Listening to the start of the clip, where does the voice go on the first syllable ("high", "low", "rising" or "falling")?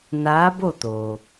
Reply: rising